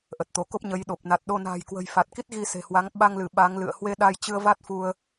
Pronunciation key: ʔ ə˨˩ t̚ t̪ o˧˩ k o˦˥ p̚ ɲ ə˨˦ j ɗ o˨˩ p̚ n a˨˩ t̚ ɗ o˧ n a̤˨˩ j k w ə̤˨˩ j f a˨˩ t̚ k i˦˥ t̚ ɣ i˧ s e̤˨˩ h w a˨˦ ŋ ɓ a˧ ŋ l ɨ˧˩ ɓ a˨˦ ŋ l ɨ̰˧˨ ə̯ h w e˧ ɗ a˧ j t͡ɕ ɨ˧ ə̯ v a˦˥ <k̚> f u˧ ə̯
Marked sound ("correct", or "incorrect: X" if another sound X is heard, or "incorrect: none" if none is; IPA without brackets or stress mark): incorrect: t̚